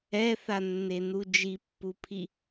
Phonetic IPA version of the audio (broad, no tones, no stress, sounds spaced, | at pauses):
ɛ θ a nː e n u d͡ʒ i pː u pʰ i